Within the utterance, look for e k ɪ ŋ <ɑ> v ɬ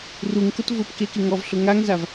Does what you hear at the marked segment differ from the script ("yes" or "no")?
yes